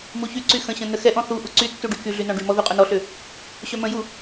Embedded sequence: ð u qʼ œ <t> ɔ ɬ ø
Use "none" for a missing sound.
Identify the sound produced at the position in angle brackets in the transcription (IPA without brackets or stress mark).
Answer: n